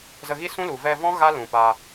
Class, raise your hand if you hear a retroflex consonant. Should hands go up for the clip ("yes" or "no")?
no